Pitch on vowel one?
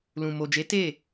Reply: low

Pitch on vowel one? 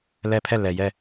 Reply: high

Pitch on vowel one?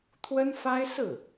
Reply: high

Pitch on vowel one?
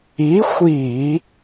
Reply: rising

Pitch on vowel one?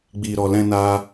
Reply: low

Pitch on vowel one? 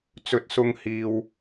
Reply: rising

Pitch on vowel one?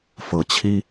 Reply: low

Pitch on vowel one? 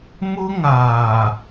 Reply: high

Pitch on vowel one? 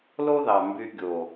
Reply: high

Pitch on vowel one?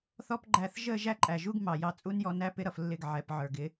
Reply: high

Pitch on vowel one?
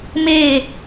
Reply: falling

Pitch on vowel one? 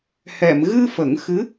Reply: low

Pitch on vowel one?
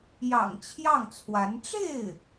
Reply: low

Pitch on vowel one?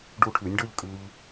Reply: rising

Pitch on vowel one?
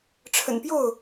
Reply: low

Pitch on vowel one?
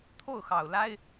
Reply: falling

